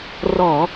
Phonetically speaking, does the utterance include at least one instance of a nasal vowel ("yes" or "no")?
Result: no